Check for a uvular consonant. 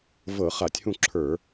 present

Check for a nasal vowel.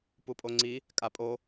absent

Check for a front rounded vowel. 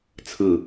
absent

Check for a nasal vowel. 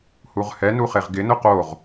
absent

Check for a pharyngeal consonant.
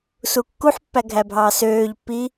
present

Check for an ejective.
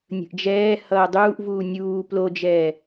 absent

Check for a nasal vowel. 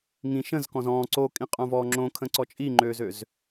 present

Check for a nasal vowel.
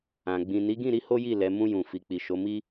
present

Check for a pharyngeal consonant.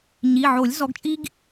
present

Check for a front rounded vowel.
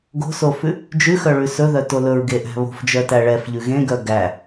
present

